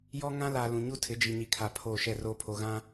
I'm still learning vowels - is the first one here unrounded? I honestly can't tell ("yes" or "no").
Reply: no